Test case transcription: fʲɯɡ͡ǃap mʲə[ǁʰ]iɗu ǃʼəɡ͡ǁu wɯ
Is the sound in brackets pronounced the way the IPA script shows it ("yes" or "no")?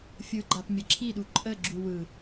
yes